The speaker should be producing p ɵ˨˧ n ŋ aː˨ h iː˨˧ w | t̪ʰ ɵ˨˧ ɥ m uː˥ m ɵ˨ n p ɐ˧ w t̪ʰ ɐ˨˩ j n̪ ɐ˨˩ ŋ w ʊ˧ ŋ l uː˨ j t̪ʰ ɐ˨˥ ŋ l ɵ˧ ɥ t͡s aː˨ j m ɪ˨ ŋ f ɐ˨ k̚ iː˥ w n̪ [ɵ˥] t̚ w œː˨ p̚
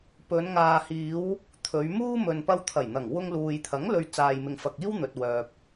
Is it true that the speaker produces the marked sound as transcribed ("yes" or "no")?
no